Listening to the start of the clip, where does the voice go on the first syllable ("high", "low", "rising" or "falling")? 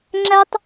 high